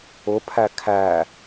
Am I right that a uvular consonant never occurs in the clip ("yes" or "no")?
yes